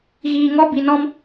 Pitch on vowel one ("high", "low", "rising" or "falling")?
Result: low